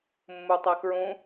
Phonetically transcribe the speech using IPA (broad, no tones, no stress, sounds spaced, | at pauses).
mː u tˤ æ k ɹ ũ